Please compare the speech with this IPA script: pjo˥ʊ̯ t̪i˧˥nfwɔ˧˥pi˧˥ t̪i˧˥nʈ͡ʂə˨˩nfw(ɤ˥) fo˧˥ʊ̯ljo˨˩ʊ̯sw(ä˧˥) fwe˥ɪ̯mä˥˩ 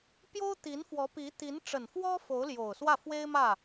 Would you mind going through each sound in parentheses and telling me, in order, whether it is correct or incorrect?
incorrect, incorrect

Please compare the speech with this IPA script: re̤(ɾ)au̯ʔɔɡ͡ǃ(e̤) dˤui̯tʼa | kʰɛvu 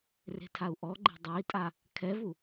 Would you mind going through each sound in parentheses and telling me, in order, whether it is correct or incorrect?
incorrect, correct

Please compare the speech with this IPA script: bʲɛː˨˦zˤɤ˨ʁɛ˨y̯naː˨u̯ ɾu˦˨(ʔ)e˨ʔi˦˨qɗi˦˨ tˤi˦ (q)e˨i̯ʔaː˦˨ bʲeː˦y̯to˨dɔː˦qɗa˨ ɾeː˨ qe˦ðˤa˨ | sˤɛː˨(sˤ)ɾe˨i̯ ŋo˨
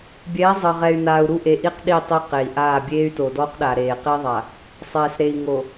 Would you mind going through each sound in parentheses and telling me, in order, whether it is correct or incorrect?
correct, correct, incorrect

